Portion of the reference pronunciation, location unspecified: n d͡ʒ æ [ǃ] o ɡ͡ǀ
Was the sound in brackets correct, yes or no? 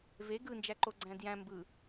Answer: yes